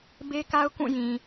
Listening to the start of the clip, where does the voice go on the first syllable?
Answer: high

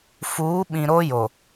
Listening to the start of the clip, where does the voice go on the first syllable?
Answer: rising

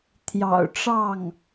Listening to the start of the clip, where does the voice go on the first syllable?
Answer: low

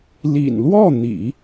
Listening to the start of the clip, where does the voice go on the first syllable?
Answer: low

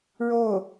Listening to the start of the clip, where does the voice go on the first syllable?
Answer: falling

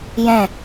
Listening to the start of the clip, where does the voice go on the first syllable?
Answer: falling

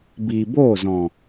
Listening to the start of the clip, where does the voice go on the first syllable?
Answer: low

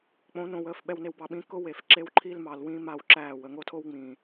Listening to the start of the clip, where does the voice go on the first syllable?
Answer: rising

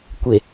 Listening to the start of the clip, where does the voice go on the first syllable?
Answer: low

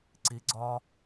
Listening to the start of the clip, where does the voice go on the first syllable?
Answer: rising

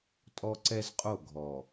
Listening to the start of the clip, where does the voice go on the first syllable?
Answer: high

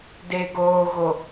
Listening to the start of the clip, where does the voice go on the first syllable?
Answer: low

